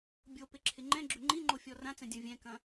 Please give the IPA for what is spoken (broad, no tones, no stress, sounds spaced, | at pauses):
bʲ o p ɪ ǁʰ ɪ ŋ͡ǃ ɛ̃ ɡ͡ǁ ʏ ŋ͡ǃ ĩ ŋ͡ǃ o fʲ ɔ r ã t͡s ɛ̃ dʲ ɐ̃ vʲ ɛ̃ k ɐ̃